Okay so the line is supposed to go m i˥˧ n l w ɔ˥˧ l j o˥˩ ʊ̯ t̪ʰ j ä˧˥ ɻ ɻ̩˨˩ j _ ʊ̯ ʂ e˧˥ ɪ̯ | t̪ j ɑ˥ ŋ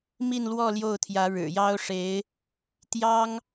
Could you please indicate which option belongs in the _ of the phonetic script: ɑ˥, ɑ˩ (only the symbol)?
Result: ɑ˥